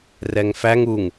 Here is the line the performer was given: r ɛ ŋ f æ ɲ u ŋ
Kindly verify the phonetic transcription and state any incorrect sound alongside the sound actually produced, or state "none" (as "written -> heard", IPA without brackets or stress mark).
ɲ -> ŋ